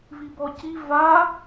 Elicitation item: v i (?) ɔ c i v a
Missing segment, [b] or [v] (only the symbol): b